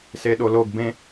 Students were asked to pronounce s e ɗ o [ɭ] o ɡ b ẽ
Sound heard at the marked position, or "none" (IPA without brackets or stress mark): l